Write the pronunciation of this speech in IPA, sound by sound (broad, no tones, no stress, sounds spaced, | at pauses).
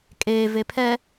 kʼ eː v e pʰ ɛ